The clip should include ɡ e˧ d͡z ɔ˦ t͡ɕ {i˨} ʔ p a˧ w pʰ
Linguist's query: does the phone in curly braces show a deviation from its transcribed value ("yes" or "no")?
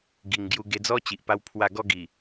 no